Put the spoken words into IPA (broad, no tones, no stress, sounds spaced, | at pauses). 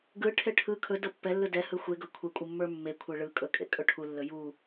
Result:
ɡ ɯ ʈʰ e ʈʰ ɯ kʰ ɵ d ɤ pː ɛ lː ɯ d ɛ h ɯ xʷ e ɡ ɤ kʷʰ e kʷʼ ɯ mː ə˞ mː e kʷʰ e ɭ ɯ kʼ ɵ kʼ ḛ kʼ ɵ ʈʰ u lː ɵ j u